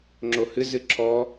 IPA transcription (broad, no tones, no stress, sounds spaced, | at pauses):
ŋ͡ǁ o h ɨ z ɨ ǁʰ ɔ